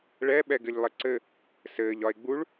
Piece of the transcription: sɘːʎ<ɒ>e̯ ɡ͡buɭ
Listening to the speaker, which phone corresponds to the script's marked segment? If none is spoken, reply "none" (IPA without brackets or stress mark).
ɒ